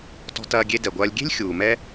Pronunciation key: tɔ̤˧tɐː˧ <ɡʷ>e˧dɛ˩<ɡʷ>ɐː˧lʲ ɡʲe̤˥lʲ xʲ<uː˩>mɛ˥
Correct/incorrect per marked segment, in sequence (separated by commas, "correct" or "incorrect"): incorrect, correct, correct